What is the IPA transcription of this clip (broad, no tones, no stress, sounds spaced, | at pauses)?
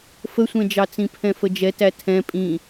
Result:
f ə sʷ ɛ̃ d͡ʒ ɑ t͡s ĩ pʰ ɛ̃ f ə d͡ʒ ɛ t æ tʰ ɛ̃ pʼ ĩ